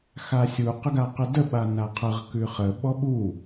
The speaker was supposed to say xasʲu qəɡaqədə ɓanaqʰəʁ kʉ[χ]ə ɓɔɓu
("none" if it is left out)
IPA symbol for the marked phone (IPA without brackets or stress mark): χ